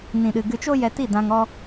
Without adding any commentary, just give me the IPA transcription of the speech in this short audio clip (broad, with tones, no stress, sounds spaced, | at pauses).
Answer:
n ĩ˨ ɗ ɨ˨ ɡ ɨ˧ t͡ʃ o˦ j ɛ˧ t i˦˨ d ã˧ ŋ ɔ˦